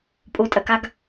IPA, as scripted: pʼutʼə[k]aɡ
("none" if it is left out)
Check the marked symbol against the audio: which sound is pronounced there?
k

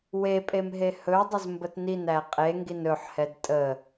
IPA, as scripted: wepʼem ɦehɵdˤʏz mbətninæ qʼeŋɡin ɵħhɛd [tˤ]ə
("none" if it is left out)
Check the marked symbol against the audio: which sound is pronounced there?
tʼ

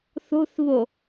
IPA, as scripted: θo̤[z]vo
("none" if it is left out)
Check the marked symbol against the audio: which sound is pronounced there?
θ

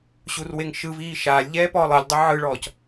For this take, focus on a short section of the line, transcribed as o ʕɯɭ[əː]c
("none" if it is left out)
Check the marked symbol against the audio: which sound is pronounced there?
ɔː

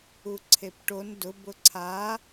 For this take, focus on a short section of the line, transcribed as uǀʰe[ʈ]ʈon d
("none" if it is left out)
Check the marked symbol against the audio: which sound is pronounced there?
p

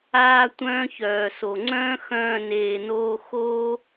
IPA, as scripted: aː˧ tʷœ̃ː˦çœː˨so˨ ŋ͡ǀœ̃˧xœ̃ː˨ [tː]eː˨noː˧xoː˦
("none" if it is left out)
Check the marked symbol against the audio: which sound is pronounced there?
n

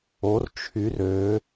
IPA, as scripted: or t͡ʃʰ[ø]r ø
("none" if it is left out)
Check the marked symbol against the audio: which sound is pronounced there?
y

